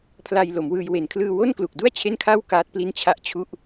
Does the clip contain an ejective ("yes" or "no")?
no